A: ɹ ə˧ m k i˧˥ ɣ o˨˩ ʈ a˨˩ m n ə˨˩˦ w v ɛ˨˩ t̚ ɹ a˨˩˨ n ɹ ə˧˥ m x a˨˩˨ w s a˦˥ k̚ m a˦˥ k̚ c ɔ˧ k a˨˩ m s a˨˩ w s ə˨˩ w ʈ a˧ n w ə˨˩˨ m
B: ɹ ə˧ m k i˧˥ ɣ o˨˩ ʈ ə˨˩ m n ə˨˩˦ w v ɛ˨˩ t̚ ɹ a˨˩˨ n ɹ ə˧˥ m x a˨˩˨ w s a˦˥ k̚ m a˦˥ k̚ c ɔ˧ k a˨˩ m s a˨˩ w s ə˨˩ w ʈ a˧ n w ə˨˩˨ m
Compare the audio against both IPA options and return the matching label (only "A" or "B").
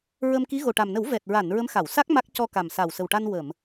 A